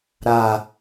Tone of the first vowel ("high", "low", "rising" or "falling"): low